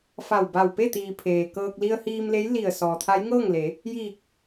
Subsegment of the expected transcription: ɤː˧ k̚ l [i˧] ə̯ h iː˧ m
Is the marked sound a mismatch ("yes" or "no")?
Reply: no